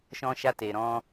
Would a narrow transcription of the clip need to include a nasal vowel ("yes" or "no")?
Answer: yes